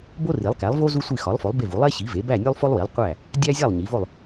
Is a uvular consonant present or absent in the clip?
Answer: present